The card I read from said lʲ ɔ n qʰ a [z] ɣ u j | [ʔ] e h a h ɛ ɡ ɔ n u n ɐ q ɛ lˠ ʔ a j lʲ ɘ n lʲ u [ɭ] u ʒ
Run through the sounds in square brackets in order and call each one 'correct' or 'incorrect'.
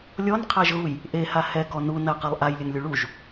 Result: incorrect: ʒ, correct, correct

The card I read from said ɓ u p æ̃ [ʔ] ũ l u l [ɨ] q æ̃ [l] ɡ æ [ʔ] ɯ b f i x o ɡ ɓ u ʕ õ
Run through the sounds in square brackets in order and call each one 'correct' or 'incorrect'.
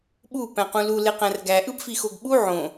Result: incorrect: q, incorrect: e, incorrect: r, correct

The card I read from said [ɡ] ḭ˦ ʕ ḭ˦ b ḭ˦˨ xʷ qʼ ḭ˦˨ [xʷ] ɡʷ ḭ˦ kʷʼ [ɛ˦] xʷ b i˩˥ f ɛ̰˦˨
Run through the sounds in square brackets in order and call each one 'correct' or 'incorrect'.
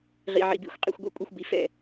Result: incorrect: ʁ, correct, correct

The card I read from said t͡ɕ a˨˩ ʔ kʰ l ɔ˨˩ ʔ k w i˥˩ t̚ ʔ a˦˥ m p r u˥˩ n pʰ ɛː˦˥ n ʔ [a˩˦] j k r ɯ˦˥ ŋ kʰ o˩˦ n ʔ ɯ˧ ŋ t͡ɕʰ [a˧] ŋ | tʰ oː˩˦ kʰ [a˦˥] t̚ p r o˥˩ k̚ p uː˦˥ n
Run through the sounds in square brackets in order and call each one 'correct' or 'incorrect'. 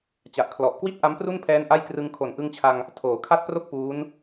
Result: incorrect: a˥˩, correct, incorrect: a˥˩

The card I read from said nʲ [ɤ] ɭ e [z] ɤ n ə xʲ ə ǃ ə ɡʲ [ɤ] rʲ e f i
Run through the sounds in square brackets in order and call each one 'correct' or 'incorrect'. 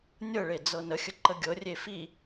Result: correct, incorrect: d͡z, correct

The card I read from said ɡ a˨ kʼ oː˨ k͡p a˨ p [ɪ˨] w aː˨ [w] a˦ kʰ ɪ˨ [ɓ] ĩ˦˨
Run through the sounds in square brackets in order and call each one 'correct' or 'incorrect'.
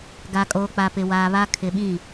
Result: correct, incorrect: β, correct

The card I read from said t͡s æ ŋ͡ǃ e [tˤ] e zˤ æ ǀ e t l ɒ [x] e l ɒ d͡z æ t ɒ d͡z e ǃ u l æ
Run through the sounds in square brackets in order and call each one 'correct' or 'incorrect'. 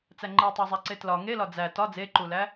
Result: correct, incorrect: ŋ

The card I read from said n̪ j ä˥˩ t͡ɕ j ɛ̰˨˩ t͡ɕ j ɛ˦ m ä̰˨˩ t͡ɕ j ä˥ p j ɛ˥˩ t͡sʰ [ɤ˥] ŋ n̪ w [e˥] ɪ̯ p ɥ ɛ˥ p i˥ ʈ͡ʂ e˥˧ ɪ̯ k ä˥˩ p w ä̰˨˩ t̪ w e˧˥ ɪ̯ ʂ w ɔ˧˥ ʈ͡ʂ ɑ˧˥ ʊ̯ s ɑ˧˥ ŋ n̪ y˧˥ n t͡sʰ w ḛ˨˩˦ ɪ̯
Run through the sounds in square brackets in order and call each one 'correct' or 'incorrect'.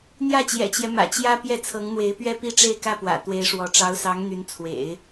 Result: incorrect: ɤ˧˥, incorrect: e˧˥

